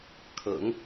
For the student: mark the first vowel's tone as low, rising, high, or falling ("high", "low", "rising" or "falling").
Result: low